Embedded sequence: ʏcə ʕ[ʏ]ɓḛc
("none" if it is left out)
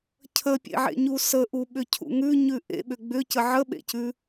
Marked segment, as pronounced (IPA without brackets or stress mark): ə